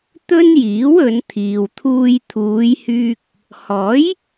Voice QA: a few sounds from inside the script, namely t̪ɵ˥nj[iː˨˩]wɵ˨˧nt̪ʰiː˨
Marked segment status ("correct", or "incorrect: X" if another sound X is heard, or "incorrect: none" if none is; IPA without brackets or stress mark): incorrect: iː˨˥